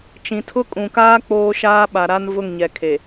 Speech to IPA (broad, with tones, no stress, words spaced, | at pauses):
t͡ʃĩ˨tʰʊ˦kʼũ˨kaː˦ k͡poː˦ʃaː˦ ɓa˨ɾa˦n vʊ˦˨ŋɲɛ˨kʰe˨